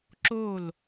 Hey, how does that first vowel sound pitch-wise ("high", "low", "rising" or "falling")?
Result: falling